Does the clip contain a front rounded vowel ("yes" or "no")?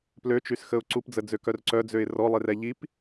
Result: yes